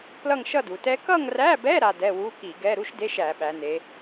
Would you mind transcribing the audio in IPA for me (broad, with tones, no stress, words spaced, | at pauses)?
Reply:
plʌ˥˧ŋʃʌ˥˧du˩˧tɛ˦˥ kʌ˥˧ŋræ˧˥˧bɛ˧˥˧ ɾa˥˧dɛ˧˥˧ wu˧˥˧ki˧˩˧ɡɛ˧˥˧ ɾu˦˥ʃde˧˥˧ʃæ˧˩˧ ɓæ˩˧ne˩˧